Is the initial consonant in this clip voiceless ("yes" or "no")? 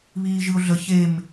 no